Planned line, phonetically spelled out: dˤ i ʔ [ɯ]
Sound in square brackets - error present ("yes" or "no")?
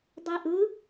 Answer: no